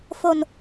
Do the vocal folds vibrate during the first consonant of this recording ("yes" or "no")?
no